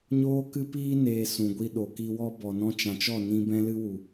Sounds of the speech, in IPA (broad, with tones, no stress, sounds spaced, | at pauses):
ɲ oː˦ k ɨ˦ p iː˦ n eː˧ s ũ˨ ɡʷ i˧ ɗ o˨ k i˧ w ɔ˦ b ɔ˨ n ɔ̃˦ t͡ʃ ã˨ t͡ʃ ɔ˦˨ n ĩ˧ b ɛ̃˦ l ɨ˦ w u˨